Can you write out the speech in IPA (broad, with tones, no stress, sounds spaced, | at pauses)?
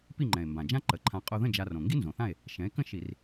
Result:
p i˥˨ ŋ͡ǃ ɛ̃˨˩ e̯ m b ã˨˩ d͡ʒ ã˥ ǃ ə˨˩ ǃʰ ã˧ qʼ o˧ ð ə̃˥˨ d͡ʒ a˧ r õ˨˩ ŋ ɡ i˥ n z õ˨˩ θ ã˥˨ e̯ | ʃ ɛ̃˩˥ e̯ k ə̃˥˨ ʃ i˧˩˧ r